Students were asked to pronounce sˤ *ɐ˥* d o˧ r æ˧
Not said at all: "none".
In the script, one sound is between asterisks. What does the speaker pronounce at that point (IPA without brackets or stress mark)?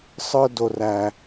ə˞˥